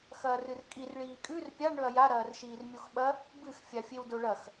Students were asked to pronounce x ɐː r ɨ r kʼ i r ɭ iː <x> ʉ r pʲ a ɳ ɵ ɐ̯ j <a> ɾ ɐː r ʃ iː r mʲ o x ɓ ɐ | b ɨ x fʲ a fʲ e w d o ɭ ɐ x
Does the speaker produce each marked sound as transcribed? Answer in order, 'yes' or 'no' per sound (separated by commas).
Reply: no, yes